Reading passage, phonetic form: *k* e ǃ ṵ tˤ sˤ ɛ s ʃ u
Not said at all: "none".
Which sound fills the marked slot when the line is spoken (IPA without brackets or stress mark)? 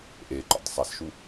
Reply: ʔ